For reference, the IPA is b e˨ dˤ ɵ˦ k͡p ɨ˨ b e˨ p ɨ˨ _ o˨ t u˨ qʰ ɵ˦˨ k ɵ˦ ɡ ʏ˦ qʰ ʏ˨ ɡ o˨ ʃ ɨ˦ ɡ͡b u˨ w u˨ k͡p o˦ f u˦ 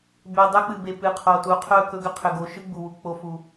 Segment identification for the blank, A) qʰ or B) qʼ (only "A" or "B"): A